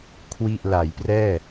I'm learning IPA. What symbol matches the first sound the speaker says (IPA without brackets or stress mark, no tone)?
kʰ